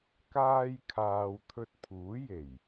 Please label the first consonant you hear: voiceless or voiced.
voiceless